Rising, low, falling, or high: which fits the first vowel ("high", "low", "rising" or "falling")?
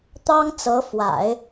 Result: high